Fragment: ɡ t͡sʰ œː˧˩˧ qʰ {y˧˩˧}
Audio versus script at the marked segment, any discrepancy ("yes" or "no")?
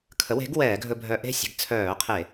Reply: yes